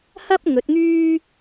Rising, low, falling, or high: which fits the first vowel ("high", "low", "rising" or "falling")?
high